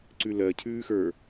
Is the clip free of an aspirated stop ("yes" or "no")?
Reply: no